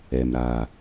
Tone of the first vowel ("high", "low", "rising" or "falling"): low